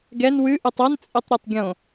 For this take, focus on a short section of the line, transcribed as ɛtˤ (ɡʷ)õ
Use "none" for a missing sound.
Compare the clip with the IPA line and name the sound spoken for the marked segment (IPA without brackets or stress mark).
ɡʲ